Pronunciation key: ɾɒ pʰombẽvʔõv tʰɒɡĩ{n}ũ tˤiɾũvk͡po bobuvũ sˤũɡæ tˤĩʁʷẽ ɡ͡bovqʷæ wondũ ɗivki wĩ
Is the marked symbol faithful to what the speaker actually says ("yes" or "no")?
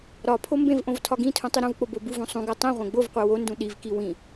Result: no